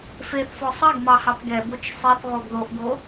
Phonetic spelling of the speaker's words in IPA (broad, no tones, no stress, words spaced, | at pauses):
feθfɔ sˤɐɡ mɑhɑpɡɛbot͡ʃ sˤeθʁoɡ ðoʔɡo